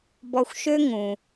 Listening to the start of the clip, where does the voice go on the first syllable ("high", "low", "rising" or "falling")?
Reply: low